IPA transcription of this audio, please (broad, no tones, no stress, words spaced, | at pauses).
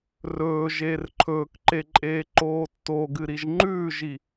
rɵːʒeːr ǃʰɵːkǃeǃʼeːǃoː tːoɡɨɾiʒ ŋ͡ǃʉːʒi